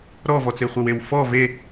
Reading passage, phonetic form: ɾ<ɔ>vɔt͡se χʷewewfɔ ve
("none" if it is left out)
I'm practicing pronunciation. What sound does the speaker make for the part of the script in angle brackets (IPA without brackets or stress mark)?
ɔ